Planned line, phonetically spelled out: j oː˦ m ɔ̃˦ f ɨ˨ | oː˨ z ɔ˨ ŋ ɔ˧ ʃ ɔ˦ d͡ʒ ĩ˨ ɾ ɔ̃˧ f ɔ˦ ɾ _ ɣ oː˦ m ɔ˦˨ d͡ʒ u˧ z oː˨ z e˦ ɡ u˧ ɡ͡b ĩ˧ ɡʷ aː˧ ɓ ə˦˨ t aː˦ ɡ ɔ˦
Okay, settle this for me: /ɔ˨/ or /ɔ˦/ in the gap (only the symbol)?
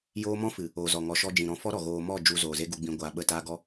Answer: ɔ˨